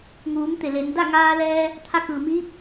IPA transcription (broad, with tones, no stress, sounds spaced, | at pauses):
ŋ uː˩˧ m t̪ e˩ l e˩˧ n d a˥˨ ŋ aː˧ l ɛː˧ | t̪ʰ a˧ k ɯː˩ m iː˧˥ p̚